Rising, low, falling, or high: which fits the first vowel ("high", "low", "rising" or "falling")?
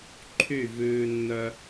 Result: falling